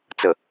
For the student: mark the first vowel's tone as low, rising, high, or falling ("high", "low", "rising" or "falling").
low